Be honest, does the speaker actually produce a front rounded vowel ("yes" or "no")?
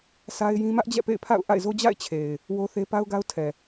no